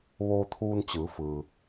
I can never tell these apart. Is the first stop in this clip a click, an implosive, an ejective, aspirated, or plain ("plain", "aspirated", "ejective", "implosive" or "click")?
aspirated